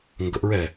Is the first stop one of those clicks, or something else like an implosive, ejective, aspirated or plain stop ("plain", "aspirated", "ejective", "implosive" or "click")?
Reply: plain